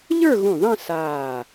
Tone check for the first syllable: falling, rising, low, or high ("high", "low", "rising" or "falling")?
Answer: falling